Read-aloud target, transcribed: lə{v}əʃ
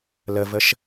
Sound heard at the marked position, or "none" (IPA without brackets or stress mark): v